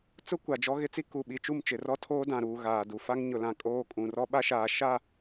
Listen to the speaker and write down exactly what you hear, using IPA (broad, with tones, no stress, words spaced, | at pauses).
t͡sʊ˦ kʷa˨d͡ʒɔ˦ ɣɪ˦t͡si˦ ku˨ ɓi˨t͡ʃu˦˨mt͡ʃɪ˨rɔ˦ tʰoː˦dã˨ɾuː˨ ɣaː˨du˨ fa˦ŋɲʊ˨lã˨ kʼoː˦kʼũ˨ rɔ˦ɓa˦ʃaː˨ ʃa˦˨